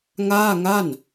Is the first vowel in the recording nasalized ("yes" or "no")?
no